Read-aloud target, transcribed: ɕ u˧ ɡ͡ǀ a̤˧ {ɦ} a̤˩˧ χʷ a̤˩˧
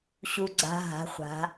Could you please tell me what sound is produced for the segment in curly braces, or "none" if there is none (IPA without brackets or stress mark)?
ɦ